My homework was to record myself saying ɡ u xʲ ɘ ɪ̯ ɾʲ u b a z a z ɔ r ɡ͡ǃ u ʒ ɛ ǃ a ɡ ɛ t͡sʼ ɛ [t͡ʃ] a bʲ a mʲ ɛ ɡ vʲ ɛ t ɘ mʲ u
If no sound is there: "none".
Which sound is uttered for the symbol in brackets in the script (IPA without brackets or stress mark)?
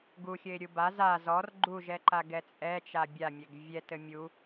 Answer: t͡ʃ